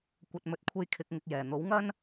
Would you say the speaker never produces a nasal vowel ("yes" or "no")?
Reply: yes